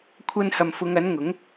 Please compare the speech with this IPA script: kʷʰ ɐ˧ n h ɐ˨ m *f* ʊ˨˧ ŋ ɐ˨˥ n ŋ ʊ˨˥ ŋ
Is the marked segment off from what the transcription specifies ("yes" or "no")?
no